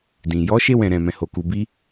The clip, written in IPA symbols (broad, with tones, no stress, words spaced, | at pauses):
dĩ˨ jɔ˨˦ʃe˧wɛ̃˨ ɾɛ̃˨mɛ̃˨ho˨ ku˨bi˧